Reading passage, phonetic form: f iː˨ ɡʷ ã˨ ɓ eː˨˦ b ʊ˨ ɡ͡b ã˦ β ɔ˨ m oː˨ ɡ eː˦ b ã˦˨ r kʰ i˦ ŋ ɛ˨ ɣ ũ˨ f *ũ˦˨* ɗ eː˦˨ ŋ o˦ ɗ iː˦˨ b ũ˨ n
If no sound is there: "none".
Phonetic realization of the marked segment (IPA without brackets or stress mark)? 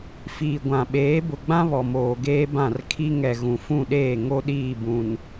ũ˦˨